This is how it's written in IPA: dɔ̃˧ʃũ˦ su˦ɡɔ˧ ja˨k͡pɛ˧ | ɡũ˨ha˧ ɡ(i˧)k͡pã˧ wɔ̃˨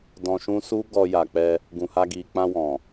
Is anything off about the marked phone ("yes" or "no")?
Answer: yes